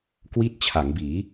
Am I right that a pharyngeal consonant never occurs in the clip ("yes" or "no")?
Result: yes